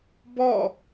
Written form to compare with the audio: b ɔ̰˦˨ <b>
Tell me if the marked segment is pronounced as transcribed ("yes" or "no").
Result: no